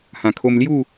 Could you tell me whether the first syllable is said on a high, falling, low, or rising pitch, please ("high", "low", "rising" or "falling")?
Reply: low